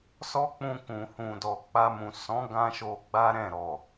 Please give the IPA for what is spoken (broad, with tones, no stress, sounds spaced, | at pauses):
s ɔ˦ k͡p ũ˧ k ũ˨ h ũ˨ d ɔ˨ k͡p a˧ m ũ˨ s ɔ̃˨˦ ɡ ã˦ ʃ o˧ ɡ͡b a˦ ɾ ɛ̃˦˨ ɾ ɔ˨